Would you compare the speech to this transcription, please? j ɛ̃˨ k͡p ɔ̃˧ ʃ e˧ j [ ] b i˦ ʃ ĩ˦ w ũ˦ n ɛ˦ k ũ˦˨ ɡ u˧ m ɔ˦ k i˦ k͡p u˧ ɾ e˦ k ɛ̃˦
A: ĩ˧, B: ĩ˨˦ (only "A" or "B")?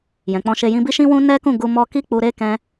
A